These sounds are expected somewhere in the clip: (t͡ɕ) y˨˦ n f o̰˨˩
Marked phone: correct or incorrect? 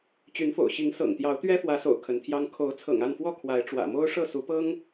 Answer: correct